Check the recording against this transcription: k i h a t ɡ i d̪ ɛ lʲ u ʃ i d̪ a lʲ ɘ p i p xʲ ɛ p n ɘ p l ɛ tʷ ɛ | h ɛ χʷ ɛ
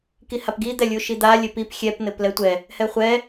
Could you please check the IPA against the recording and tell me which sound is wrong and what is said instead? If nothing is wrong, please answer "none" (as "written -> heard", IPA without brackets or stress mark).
t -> p